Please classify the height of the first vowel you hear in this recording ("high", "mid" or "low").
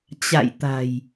low